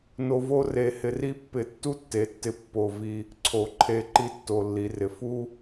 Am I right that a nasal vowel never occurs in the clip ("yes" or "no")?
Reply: yes